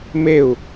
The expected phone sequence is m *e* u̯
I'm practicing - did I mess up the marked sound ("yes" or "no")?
no